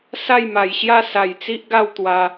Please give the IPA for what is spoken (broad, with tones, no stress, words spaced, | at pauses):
sa˥˧jma˨˩jɕja˥˧ sa˨˩jt͡si˦ʔ ɡa˥˧w t̪wa˧